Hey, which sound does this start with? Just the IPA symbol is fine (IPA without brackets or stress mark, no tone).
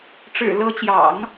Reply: ʈ͡ʂ